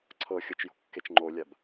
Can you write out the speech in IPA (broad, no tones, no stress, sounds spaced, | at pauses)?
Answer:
ǀʰ ɤ xʲ ɤ t͡ʃ j o̤ kː e t͡ʃ ŋ͡ǃ o lʲ a b